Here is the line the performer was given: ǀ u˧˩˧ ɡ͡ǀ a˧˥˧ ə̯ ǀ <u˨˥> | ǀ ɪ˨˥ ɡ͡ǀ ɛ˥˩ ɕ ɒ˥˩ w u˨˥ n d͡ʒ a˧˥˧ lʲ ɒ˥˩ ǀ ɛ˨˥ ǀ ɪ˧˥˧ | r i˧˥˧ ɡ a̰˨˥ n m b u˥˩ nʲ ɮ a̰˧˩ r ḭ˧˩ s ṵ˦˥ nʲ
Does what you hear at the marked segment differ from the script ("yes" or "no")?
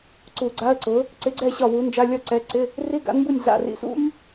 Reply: yes